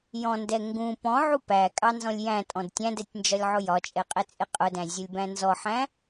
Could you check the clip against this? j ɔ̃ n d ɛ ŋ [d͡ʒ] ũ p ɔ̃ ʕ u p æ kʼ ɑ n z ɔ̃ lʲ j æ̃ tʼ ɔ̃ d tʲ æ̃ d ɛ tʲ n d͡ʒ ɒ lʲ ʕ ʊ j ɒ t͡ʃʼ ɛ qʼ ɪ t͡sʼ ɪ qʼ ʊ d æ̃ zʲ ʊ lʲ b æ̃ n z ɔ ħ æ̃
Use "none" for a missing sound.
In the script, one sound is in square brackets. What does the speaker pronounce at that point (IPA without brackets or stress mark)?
ɡ